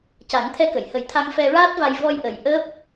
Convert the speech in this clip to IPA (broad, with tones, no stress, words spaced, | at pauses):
ca˨˩˦ŋt̪ʰɛ˧kə˨˩˨jhə˨˩˦j t̪ʰa˧ŋfɛ˧ɹaː˦˥t̚va˧j vɔ˧jʔə˨˩j ʔəː˦˥p̚